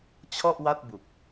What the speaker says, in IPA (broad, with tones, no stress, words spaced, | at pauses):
t͡ɕʰɔ˥˩ʔwa˥˩t̚bu˨˩k̚